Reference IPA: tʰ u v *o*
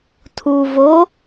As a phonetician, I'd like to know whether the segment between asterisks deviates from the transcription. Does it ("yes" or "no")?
no